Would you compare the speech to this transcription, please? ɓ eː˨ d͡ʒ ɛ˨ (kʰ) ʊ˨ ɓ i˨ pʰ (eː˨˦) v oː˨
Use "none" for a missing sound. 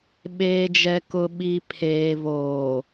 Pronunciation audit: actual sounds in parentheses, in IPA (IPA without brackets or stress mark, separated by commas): k, eː˨